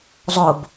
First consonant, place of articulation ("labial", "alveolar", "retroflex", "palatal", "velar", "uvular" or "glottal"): alveolar